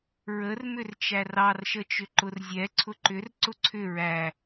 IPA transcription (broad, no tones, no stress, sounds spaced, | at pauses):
ɹ ə r m ʏ r t͡ʃ æ r ɑ r ʃ ə t͡ʃ ʏ ǃ ʊ r zʲ ɛ ǀʰ ʊ ǃ ʏ r ǀ ʊ ǀʰ ʏ ɹ æ